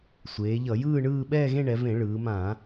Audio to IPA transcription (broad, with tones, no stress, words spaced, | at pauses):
sʷeː˩˧ʎʌ˧˩˧jɯː˥˧ɳɯː˥˧ ɓɛː˥˧ɣẽ˥˧ɳɛ˩˧ vẽ˧˩˧ ɭɯː˩˧mã˧˩˧